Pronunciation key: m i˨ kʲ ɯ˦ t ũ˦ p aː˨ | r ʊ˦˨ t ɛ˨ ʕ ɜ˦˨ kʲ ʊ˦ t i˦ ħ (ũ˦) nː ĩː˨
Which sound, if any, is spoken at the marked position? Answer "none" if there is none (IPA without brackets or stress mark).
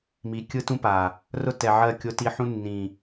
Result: ũ˦